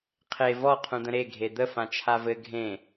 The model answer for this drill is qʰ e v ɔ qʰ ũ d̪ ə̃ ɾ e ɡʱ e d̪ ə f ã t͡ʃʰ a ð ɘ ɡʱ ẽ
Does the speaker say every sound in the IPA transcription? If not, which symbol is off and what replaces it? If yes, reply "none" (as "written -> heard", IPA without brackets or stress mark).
ð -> v